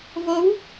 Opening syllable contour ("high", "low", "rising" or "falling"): rising